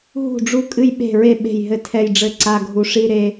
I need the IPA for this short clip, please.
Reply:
ɦ ṳ˥˩ ɖ͡ʐ u˥˧ kʼ ɨ˥˧ j ɓ e̤˥˩ ɹ e˥˩ ɓ e̤˥˩ j ɦ ɘ˥˩ tʰ ɛ˥˧ j ɖ͡ʐ ɘ˥˧ ǀ a˥˧ ɡʱ u˥˩ ʂ i˥˧ ɾ e˥˧

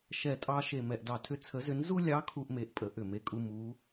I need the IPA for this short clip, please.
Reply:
ʃ ɛ˧˩ tʼ ɑ˦ ʃ e˧˩ m ɛ˧˩ ʔ d ɑ˧˩ tʰ ʏ˦ t͡sʰ ə˨˥ z ʏ˨˥ n z u˦ lʲ ɑ˨˥ kʰ u˦ ʔ m e˨˥ ʔ pʼ ə˨˥ ʔ ʏ˧˩ m e˦ kʼ u˦ m u˨˥

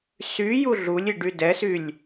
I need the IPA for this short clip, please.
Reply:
s y j u ɮ u lʲ i ɖ y d ɛ s y lʲ

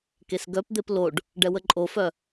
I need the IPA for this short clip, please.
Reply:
k e s ɡ œ p d̪ e p l o ɖ | ɖ ɛ w ə ǃʼ o f œ

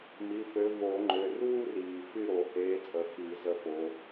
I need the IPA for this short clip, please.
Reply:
m i˩˧˩ f ø˨˦ v o˨˩˦ ŋ͡ǃ ø˩˧˩ r uː˥ r iː˩ f y˥˨ ɾ o˨˩˦ h eː˨˦ t͡sʼ ə˨˩˦ f i˨˩˦ z ə˥˨ f o˨˦

